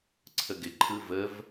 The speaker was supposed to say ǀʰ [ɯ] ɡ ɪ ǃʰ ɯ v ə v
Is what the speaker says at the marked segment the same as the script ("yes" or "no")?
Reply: no